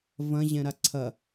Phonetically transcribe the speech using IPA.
v ɐ̃ ʑ ɛ̃ ɾ a ǀʰ ɐ

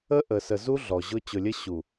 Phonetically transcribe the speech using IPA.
ə˦ ʔ ə˨ s ə˨ z u˦ ɮ ɔ˨ ʑ ʊ˦ t͡ɕ ʊ˨ lʲ ə˦ ɕ u˨

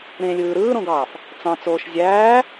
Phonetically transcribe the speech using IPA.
ɾ ẽ lʲ ɯː ɾ ɯː ɾ õ ɡ ɑː f | t͡s ɑ̃ t͡s oː ʃ zʲ æː

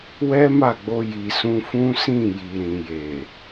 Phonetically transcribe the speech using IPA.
w ɛ˦ m a˦˨ ɡ͡b o˧ j i˨ s ũ˧ f ũ˦ s ĩ˦˨ j i˨ ɾ ĩ˨ j e˨

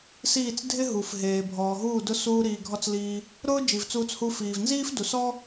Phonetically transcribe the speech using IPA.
s iː˦˨ t͡s dʱ ɪ˦ ɦ u˨ f ɦ eː˨ bʱ ɔː˨ ɦ uː˦˨ d ʊ˧ s uː˧ ɾ iː˨ ɡʱ ɔ˧ t͡s l iː˧ | ɾ ʊː˦ d͡ʒ i˨ v t͡s uː˧ t͡s h u˧ f iː˨ v n z iː˦ f d u˨ s ɔ˦

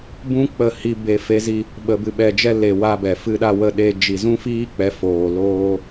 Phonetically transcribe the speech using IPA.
b ũ˦ k͡p ə˧ h i˧ b e˧ f e˦ z i˦ | ɓ ə˧ b ɨ˧ ɓ ɛ˧ d͡ʒ ɛ˦ l e˨ w a˧ b ɛ˨ f ɨ˦ ɗ a˦ w ə˦ ɗ e˧ d͡ʒ i˨ z ũ˦ f iː˦ k͡p ɛ˨˦ f oː˨ l oː˦

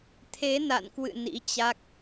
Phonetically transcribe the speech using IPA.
t̪ʰ e˨˦ n a̰˧˨ n k w ɨ̰˧˨ n ḭ˧˥ t͡ɕ a˦˥ k̚

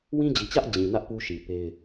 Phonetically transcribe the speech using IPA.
w ĩ˦ d͡ʑ i˨ t͡ɕ ä˦ ʔ d͡ʑ ĩ˨ n ä˦ ʔ p u˦ ʃ i˨ p e˦ ɪ̯

